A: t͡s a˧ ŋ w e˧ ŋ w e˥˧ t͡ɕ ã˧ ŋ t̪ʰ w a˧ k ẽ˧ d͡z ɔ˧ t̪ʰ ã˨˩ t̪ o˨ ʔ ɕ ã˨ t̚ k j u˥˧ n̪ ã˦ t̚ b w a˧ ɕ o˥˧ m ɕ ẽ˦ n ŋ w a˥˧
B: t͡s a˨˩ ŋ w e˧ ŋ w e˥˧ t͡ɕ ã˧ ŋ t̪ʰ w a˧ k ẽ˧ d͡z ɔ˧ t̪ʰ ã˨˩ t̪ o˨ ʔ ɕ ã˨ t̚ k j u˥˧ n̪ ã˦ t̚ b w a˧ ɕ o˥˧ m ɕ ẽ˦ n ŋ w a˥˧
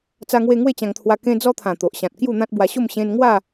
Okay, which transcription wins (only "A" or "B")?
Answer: A